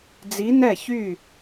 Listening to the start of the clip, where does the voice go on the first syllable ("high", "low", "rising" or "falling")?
rising